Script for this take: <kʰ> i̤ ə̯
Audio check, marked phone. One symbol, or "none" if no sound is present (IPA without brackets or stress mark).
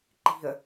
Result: ǃ